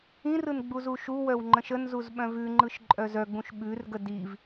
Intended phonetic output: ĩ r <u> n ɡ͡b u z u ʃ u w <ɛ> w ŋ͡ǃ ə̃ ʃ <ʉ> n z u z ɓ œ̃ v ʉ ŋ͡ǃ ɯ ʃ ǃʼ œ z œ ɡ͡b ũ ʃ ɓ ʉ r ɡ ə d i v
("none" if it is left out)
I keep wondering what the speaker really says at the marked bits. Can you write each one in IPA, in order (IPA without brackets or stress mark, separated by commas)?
ɯ, œ, ə